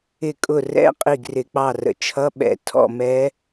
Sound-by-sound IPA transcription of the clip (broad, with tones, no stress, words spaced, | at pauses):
ɪ˧˩kʼʊ˧˩ rɛ̰˧˥˧ qʼi˧˩ɡrɪ˨˩˦k͡pɑ˧˩rə̰˩ t͡ʃʰʌ˧˥˧ɓɛ̰˨˩˦ tʰɔ̰˧˩mɛ˧˥